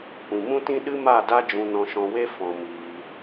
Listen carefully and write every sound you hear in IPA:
kʷĩ˨mũ˦tĩ˦ ɗɨ˦ma˦˨da˦ d͡ʒũ˧nɔ̃˧ʃɔ̃˧we˦ fɔ̃˧miː˧

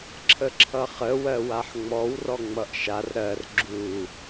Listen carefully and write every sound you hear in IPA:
ǁʰəǁʰʌχə wɜwaħŋ͡mɔw rɔŋ͡mʌʔʃar ɾɜr ɡ͡ǁu

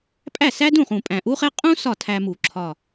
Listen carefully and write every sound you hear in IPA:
pʼæ˥˩sæ˥dũ˥˩χũ˨˩ pʼæ̃˨˩ʔu˥χe˥ qʼũ˥ sɒ˥˩tʰæ˧mu˨˩˦ ǁʰɒ˨˩

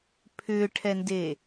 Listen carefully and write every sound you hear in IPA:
pʰʏːʈʰɛnde

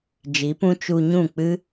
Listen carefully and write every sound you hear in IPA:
d͡ʒi˨˦pũ˦ t͡ʃu˧ɲũ˦˨k͡pɨ˦

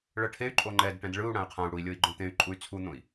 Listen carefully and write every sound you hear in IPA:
ɭɤʈʰey̯ ǃʼoŋ͡ǃɛd ʈɛ̃dɭɯu̯ ɽãy̯qʰãu̯ɽui̯lʲɤi̯ ɡ͡ǃõt̪ẽy̯ ǃʼuy̯t͡sʰun̪õi̯

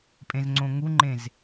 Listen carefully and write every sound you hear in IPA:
pʼẽzŋ͡ǀõŋuŋ͡ǃẽz

